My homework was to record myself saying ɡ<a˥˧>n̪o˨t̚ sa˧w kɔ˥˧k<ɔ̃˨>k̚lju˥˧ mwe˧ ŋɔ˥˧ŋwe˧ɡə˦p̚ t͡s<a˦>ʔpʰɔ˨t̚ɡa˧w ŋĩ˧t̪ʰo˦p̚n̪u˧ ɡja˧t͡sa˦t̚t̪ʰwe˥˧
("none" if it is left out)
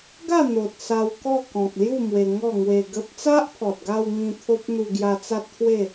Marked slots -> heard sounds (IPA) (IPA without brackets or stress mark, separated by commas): a˥˧, ɔ̃˨, a˦